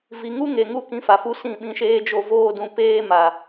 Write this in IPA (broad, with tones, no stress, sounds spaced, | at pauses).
v i˨ ŋ u˦ ŋ e˨ ŋ u˧ k ĩ˧ f a˨ f u˧ s ĩ˦˨ ɓ ĩ˧ ʃ eː˦ d͡ʒ o˧ v oː˦ d ũ˧ p eː˦ m a˨